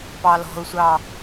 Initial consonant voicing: voiceless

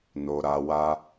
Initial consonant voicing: voiced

